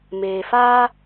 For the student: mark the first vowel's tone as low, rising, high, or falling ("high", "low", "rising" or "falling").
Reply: low